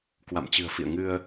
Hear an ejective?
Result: no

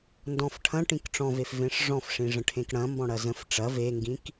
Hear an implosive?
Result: no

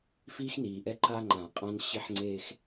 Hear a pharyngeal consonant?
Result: yes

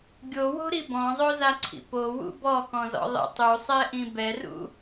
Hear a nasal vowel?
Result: yes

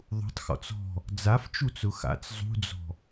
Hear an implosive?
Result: no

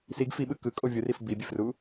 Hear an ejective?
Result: yes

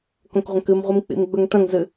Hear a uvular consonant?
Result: yes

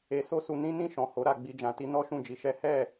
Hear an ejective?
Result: no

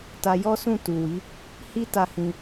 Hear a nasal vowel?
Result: yes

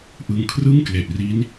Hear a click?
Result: no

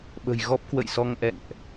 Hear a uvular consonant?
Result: no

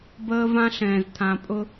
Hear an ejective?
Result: yes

